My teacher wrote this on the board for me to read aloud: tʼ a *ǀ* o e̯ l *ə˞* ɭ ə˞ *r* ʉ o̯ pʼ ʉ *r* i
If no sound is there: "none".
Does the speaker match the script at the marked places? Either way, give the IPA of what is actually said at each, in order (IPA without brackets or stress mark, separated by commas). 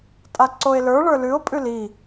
ǀ, ə˞, l, l